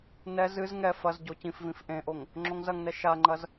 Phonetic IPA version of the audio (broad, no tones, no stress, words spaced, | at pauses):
nɛ zɨz ŋɛ fɐz ɟocĩfvĩf ʔẽʔoŋ | ŋ͡ǁoŋzɐŋnɛ ʃaŋ͡ǃɐz